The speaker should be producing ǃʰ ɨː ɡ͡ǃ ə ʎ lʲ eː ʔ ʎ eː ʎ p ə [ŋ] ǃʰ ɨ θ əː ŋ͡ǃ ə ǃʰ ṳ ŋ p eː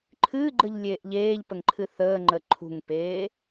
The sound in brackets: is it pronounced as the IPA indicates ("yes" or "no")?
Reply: yes